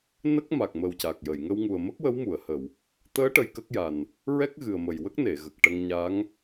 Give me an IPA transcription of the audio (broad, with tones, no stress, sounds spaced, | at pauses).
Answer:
n ə˦˥ k̚ m a˨˩ k̚ m əː˨˩ w c a˨˩ k̚ j ə˨˩˨ j ŋ ə˧ w ŋ u˨˩ ə̯ m ə˦˥ k̚ w ə˧˥ w m u˨˩˨ ə̯ h ə˨˩˨ w | t̪ əː˧˥ ʈ ə˧ j k ə˦˥ k̚ j a˨˩ n | ɹ ɛ˦˥ k̚ ɣ ɨ˨˩ ə̯ m ə˨˩ j w ə˦˥ k̚ n e˨˩˨ ɣ ə˨˩ k̚ ʈ ə˧ ŋ ɲ a˧˥ ŋ